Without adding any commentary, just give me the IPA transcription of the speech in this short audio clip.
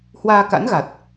hwaː˧ka̰˧˥nɣa˨˩t̚

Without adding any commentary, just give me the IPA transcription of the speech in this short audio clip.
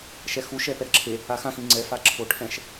ʃɛxu ʃɛpɛɾʌǁʰe | axã xĩŋ͡ǀɛ faǁʰoʈʰɛ̃ʃ

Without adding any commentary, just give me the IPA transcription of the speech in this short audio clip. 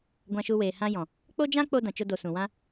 ɡʷã˧ʃu˧weː˨ hã˦jɔ̃˨ | k͡po˦d͡ʒã˦k͡po˧ dã˨t͡ʃo˧do˨ sũ˨wã˦

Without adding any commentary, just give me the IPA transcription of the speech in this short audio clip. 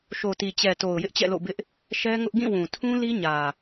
ʃo˨ti˨ t͡ɕɛ˨to˨ʊ̯ jɪ˦ʔt͡ɕɛ̰˦˨lo̰˦˨ bɪ˦ʔ | ʃɛ˦ŋʊ˦ʔ ɡĩ˦˨wũ˨tʰũ˦li˦ ɲä˨

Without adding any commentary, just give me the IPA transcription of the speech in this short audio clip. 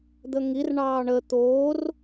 d̪əŋir ɳɑːɳə t̪oːr

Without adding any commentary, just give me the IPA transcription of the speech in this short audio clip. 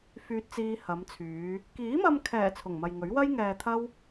fyː˧t̚t͡siː˧hɐ˨˧mt͡sʰyː˨˧ | kiː˨˥mɐ˧mkʰɛː˨˩ t͡sʰʊ˨˩ŋmɐ˨jŋɵ˨˥ɥ wɐ˥jŋɛː˧t̪ʰɐ˥w

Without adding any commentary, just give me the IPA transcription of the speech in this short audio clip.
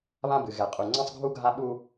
βã˦bɨ˨ɣɛ˨ qʼu˨ŋ͡ǀɛ̃˦sˤɡʱu˦ɡʱa˦ ɓu˦

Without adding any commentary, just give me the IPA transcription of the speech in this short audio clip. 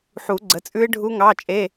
ħu˨˩˦ɡ͡ǀə˩˥t͡sʼʉ˦˥ɪ̯ ɖʱu˦˥ŋɑ˧˥˧t͡ʃʼe˧˥˧

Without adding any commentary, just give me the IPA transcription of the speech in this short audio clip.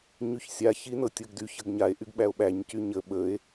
ɲyçsʲa çinɤtʲɤɡdyç əɡɲae̯ ʔyɡɓæo̯ɓæɲ cyɲə ɓəe̯

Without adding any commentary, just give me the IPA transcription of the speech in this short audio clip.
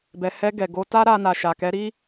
bɛ˨hɛ˧ɡɛ˨ɡo˨˦ ta˦ɾa˧ na˨ʃa˨ kɛ˨˦ ɾi˦

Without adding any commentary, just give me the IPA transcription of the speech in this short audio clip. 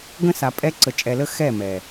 ɡə̃˦sa˨pʼɛ˦ ǀə˨t͡ʃʼɛ˨lə˦ xɛ˦˨ mɛ˨

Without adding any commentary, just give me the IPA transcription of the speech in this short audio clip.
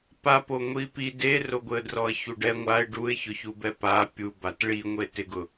papo ŋʷipi deroɡʷɪə̯drɔə̯ çuɖɛ ŋʷaɪ̯ ɖuɪ̯çʊçubɛ pa pʲubat ɭiŋʷe tɪɡʊ

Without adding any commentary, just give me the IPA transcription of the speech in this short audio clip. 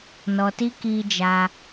nɔ˧ti˦ ki˧d͡ʒa˧

